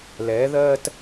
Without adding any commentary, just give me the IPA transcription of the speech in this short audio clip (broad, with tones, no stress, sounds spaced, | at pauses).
l ɛː˩˥ ð ɜː˥ t